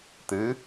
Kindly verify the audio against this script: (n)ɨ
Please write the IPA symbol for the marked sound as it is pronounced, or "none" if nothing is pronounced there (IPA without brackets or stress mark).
t̪